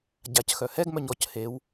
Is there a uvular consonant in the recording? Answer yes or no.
no